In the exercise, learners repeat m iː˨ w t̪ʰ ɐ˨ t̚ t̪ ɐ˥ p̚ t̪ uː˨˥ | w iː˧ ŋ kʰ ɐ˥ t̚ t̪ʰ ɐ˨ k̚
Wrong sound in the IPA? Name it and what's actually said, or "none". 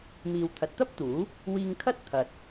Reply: k̚ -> t̚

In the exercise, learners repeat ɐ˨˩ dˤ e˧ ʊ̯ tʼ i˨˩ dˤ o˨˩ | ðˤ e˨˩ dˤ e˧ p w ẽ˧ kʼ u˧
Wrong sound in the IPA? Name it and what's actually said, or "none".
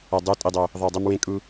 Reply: p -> m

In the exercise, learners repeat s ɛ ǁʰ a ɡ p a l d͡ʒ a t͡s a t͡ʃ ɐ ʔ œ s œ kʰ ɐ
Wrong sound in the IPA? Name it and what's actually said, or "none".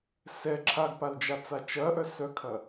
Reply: none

